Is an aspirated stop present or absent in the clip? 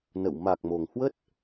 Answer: absent